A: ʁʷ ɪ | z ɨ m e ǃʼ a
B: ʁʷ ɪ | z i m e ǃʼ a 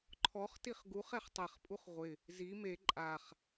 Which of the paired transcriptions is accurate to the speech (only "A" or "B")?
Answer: B